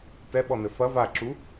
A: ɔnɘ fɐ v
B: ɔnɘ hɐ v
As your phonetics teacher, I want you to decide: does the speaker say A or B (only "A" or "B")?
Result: A